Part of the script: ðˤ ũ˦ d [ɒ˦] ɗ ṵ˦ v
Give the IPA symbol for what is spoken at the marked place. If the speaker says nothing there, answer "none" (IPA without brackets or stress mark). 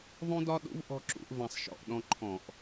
ɒ˦